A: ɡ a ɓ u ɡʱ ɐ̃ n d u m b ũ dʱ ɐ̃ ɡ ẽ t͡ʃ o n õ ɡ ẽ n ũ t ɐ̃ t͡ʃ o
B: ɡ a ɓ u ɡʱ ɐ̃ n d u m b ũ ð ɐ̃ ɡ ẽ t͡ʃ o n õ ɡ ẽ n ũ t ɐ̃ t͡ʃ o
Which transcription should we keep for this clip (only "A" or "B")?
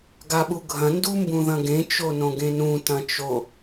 B